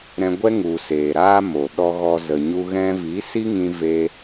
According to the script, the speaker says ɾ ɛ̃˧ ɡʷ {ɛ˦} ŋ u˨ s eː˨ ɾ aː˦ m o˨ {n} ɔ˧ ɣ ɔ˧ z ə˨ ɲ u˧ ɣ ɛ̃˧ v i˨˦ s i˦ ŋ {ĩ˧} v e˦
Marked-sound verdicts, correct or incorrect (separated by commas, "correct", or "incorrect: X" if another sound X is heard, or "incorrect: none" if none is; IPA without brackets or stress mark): correct, incorrect: ɗ, correct